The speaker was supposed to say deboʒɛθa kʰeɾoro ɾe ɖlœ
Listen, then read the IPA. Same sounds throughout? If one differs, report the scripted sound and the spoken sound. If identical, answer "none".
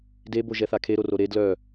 ɖ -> d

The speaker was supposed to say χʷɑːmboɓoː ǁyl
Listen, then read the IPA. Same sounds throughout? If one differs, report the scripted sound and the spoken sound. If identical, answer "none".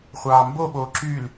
none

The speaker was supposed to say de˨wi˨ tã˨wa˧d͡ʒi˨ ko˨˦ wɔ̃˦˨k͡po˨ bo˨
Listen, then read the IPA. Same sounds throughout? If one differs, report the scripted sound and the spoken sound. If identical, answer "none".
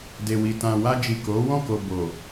k͡p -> k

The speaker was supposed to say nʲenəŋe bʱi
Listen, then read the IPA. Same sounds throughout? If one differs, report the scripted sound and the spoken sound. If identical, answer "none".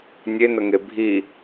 none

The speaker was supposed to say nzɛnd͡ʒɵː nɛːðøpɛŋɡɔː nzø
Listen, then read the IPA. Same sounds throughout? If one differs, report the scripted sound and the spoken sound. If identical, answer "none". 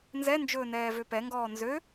ð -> v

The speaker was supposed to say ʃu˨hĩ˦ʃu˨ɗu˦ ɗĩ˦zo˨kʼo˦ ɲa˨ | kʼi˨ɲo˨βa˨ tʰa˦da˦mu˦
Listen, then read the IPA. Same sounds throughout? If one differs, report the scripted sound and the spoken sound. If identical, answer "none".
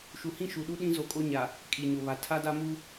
none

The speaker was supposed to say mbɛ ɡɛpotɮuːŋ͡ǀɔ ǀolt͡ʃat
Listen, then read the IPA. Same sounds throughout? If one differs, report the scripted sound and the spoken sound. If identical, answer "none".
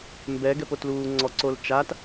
ɮ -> l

